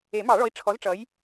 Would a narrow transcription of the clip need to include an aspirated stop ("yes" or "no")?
yes